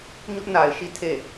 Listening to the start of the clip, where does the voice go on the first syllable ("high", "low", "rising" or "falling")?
high